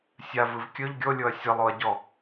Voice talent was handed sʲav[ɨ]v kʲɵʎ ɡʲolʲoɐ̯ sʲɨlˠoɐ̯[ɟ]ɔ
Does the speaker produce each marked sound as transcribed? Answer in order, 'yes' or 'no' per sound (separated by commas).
yes, yes